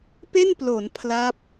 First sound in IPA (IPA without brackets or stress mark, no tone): p